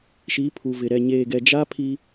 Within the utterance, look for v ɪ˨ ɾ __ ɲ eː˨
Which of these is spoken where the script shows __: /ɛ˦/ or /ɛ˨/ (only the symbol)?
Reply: ɛ˨